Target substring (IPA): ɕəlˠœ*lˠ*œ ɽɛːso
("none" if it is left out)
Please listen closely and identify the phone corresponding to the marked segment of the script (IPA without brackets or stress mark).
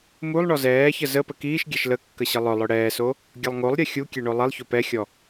lˠ